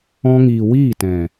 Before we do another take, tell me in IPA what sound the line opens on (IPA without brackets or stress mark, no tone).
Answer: ɔ̃